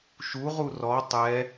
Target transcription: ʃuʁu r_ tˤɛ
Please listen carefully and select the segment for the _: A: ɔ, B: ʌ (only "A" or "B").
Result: A